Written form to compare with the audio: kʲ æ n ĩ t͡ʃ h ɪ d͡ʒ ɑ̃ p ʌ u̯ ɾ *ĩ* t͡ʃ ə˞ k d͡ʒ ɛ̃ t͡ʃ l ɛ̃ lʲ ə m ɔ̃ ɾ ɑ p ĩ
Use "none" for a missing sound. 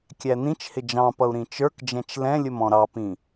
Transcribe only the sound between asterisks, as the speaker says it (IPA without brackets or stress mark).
ĩ